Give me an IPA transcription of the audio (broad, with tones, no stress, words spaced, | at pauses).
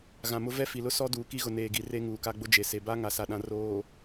ɣã˨mʊ˦ vɛ˦fi˨lʊ˦ sɔ˦ duː˨ki˦ɣʊ˨ neː˨ɡi˨re˦ ŋuː˨ka˦ɡ͡bʊ˦ d͡ʒe˨se˨ ba˦ ŋa˨sa˨ɗã˨ roː˨